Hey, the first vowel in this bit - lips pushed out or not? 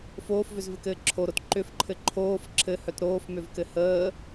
yes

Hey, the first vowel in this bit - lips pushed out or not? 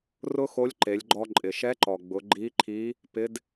yes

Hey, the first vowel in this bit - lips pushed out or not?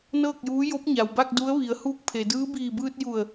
no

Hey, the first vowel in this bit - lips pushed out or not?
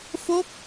yes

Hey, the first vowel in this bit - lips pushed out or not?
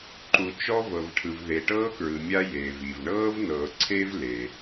yes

